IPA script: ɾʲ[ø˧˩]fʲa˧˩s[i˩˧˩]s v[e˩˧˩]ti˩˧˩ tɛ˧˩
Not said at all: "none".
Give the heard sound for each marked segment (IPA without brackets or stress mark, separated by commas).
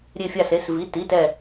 e˧˩, e˩˧˩, i˩˧˩